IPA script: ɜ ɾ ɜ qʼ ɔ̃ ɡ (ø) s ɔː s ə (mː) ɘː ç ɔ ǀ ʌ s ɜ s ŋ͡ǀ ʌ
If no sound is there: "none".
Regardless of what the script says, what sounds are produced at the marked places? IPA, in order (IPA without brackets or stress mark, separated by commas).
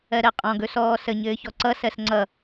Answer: ɵ, ɲ